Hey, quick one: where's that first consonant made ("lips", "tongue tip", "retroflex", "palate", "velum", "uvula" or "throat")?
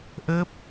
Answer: throat